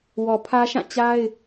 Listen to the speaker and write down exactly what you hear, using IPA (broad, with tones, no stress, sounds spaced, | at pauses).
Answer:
w ɔ˨ pʰ ä˦ ʃ ã˦˨ t͡ɕ a˦ ɪ̯